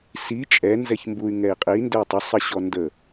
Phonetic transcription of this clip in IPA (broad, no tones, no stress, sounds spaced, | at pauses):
s i t͡ʃʼ ɛ n z ɛ ç m b u y̯ ŋ ɛ i̯ qʼ i n d ə i̯ tˤ ʊ sˤ ə ɕ ɔ n d ə